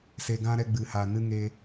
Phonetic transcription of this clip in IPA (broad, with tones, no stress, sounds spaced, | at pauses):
s e˧ ɡ ã˦ ɾ ɛ˧ ɡ͡b ɨ˨ h a˨ n ɨ˦ ŋ e˧